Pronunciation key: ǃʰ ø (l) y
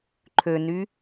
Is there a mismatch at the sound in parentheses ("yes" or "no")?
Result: yes